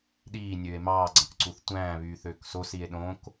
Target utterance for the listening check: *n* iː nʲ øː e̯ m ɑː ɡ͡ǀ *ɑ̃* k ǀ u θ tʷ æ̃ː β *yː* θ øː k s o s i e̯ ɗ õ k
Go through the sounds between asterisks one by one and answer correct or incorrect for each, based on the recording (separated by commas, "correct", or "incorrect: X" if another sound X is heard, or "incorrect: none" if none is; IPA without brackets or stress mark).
incorrect: ɗ, correct, correct